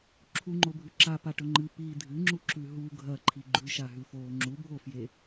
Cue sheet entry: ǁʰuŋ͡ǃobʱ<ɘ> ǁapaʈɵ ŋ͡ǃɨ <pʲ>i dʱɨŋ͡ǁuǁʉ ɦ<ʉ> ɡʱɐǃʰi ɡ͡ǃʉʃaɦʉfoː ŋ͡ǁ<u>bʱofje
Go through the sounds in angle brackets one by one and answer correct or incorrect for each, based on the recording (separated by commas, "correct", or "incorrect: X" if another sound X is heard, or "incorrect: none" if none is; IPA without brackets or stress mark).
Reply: incorrect: ʉ, incorrect: p, incorrect: u, correct